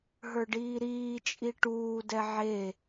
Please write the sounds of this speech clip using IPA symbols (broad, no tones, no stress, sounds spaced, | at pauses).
ɦ ə˞ ɖ iː ɾ iː t͡ʃʼ i ʈ uː d ɛ ʕ e